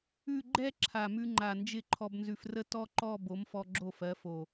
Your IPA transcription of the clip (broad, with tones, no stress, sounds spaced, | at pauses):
ʉ˥˧ ɡ͡ǃ ɛ˥˧ ǁʰ a˨˩ m ʉ˧ ŋ͡ǃ a˨˩ n d͡ʒ ɪ˥˩ ǃʰ ɔ˧ b n z ʉ˧ f r ə˥ t ɔ˥ ǃ ɔ˥˧ b o˨˥ m f ɔ˧ ɡ͡ǁ o˥˩ f ɜ˨˥ f o˨˩